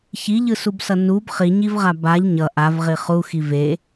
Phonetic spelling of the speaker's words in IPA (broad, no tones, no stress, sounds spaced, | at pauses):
ç i ʎ ɯ s u b s ʌ n u b χ i ɲ i v ʁ a b a ʎ ɲ ʌ ʔ a v ʁ i χ u x i v e